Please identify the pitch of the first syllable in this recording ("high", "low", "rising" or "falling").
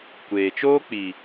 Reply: low